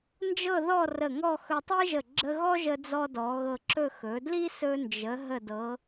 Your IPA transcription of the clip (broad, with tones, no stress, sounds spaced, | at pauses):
n d͡ʒ ɤ˥˧ ð ɔ˥˧ r ə˧˩ ŋ ɔ˥˧ x ɵ˧ tˤ i˥ ʒ ə˧˩ ɡ͡ǁ ə˧ ɣ ɔ˥ ʒ ə˧ d͡z ɔ˧ d ɔ˩˧ ɣ ɤ˧ ǁ ɵ˥˧ x ɵ˩˧ d l i˥ s ɵ˧ n d͡ʒ ə˩˧ ɦ ə˧˩ d ɤ˩˧